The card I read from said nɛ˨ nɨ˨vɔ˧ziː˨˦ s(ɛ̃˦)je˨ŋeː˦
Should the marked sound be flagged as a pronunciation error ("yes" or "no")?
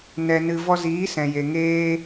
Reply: yes